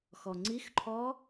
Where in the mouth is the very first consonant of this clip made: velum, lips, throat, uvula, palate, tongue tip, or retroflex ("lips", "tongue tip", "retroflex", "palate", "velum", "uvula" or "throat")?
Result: velum